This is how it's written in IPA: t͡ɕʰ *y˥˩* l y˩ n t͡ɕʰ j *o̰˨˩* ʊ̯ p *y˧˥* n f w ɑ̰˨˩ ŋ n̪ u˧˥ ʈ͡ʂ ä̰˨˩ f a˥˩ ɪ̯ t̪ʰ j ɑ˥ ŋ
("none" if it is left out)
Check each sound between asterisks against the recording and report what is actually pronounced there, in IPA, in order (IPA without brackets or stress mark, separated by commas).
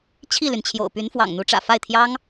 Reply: i˥˩, o̰˨˩, y˧˥